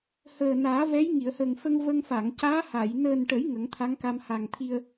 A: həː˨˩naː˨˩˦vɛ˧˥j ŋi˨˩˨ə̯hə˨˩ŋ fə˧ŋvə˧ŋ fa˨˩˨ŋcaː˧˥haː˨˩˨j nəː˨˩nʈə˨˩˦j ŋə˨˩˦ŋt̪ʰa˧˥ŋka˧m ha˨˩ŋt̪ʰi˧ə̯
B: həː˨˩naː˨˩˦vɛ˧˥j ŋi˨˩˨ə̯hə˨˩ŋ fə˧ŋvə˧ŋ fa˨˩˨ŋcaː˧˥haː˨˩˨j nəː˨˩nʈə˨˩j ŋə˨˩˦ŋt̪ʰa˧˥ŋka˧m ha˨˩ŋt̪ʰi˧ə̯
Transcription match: A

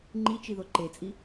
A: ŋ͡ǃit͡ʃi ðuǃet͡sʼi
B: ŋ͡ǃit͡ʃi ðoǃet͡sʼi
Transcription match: B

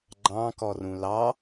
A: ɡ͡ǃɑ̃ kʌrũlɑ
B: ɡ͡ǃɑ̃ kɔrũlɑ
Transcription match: B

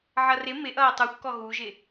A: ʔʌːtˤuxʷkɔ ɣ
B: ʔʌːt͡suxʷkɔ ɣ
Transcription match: A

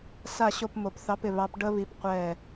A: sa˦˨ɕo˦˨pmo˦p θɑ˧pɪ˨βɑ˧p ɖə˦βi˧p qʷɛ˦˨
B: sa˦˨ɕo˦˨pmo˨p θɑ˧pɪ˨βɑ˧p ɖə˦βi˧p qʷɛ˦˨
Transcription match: B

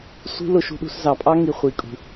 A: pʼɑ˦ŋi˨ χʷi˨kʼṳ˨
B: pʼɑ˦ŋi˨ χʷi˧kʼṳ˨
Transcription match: A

